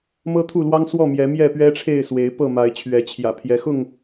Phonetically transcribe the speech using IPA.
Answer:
mɤ˦t̪ʰu˥˨lwɑ˦ŋ swɔ˥˨mjɛ˨˦ mjɛ˥˨pɥɛ˦ʈ͡ʂʰe˥˨ɪ̯swe˨˦ɪ̯ pɤ˥˨ma˨˦ɪ̯ t͡ɕʰɥɛ˨˦t͡ɕʰjä̰˨˩pʰjɛ˨˦ xʊ˥˨ŋ

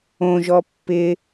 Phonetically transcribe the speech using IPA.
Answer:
õʒɔ pːɪ

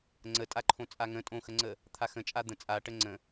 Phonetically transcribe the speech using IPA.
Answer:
ŋ͡ǀətʼaǃʰõ t͡sʼaŋə̃ tʼõxəŋ͡ǀə | t̪ʰaxə̃t͡ʃʼa d̪ə̃ t͡sʼa ʈəŋ͡ǀə̃

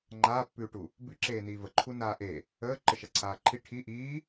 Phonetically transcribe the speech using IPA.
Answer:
ŋ͡ǃaːpːʉːʈu | bʉǁeː niːvə ǃʰunaːʔe | əː ǃəʃaǀʰaːǃʰi ʈʰi ʔiː

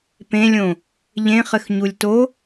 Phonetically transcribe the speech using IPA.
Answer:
pẽlʲõ | ʎẽχɘxɲulʲ to

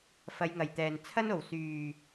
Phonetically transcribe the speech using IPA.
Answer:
fɐ˨˧jŋɐ˨˩jt̪ɛː˨˩n t͡sʰɐ˥no˨˩w syː˨˩

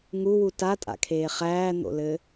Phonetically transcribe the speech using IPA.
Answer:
ŋuwu tatʼa̰kʰeː χæːn̪o̰lɘ

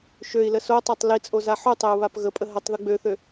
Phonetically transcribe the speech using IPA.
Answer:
ʃøi̯lə sotˤɛtˤ lit͡sʼo zaħutˤeu̯ βapɣəpʼə ɦətˤ ðuɡ͡bøθø

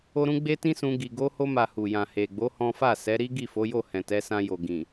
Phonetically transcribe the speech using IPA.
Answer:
o˧ɾũ˧ ɡ͡be˦tĩ˦sũ˧ ɡi˨ɡo˧ho˧ma˨ hu˨jã˨he˨ɡ͡bo˨˦ hɔ̃˦ fa˦˨sɛ˨˦ ɾi˦ɡi˦˨fo˨˦jo˦˨ hɛ̃˨tɛ˨˦ sã˧jo˨ ɡĩ˨

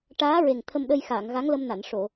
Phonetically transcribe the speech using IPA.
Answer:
ʈaː˧˥ɹe˨˩ŋ t̪ʰə˧mɗə˧jxaː˨˩˨ŋ ɣa˧˥ŋlə˧mna˨˩˨n ʂo˨˩˨

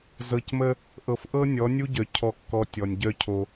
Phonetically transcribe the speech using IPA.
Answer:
zɤ˨cmə˦ | ʔɤ˨fʔɤ˦ nʲɔ˨˦nʲu˦ɟœ˨ cʰɔ˨kːɔ˨ tʲɔ˨nʲɟœ˦ cʰo˦

